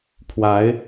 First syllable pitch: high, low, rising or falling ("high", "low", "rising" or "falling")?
rising